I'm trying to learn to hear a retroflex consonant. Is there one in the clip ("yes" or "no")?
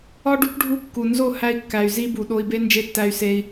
yes